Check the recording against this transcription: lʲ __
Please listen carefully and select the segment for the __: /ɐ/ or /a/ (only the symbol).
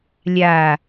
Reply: a